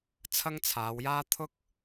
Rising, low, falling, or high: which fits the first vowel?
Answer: high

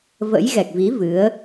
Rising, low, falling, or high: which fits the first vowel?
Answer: rising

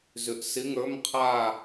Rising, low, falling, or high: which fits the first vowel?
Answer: low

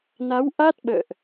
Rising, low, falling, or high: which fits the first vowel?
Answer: rising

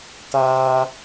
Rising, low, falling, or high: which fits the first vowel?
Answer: high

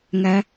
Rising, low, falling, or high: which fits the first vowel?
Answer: low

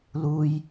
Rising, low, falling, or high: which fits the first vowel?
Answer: low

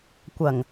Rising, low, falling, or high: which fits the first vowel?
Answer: low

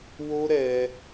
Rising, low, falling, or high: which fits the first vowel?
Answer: high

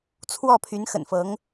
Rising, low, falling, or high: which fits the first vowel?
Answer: falling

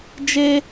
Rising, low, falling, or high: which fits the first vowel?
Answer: high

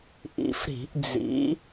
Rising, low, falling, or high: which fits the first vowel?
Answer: low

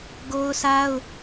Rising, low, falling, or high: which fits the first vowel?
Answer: high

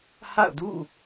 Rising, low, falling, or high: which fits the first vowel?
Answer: falling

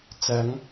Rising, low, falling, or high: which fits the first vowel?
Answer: rising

